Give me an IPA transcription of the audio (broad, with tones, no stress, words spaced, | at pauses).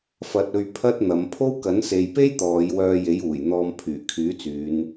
fɐ˧t̚ɵ˧ɥ pʰɐ˥t̚n̪ɐ˨˧m pʰo˥wkɐ˨˥n se˨jpe˥j t̪ɔː˨˧j wœː˧je˨˥juː˨˩j n̪ɔː˧mpʰyː˨˩ kʰyː˨˥t͡syː˨˧n